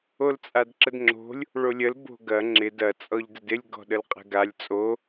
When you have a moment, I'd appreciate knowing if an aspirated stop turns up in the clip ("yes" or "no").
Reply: no